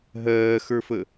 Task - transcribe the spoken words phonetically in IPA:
ɦɜːxə˞fə

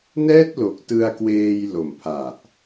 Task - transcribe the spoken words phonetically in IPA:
nɛː˥˩t̚lo˨˩k̚ tɯ˧a̯kweː˧jlo˨˩mpʰa˨˩ʔ

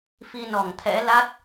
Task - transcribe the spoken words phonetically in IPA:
fi˧nɔ˧˩ŋt̪ʰɛ̰˧˥ la˦˥t̚

